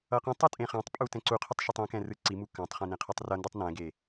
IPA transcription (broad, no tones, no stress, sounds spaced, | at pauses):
ʌ q ɛ̃ tˤ ɯ tʼ ẽ χ ã tˤ pʼ u t ɛ̃ ǀ u qʰ ɯ tˤ ʃ ɯ tˤ ĩ k ɛ̃ r ɯ ǀ i m u k ã tˤ χ ĩ n ẽ qʰ ɛ tˤ r ʌ n d ɯ tˤ n ɛ̃ ɡ e